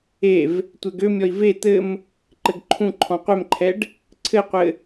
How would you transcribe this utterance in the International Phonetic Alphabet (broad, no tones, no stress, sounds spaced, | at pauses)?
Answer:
e v | tʷ ɛ ɡ ø mʲ ɔ i̯ v e t̪ ɘ m | ǃ ɘ ɡ ǃʰ ũ ǃʰ ɔ̃ qʷ ɛ m ǃʰ ɛ ɖ | ǀʰ ɘ qʷ ɘ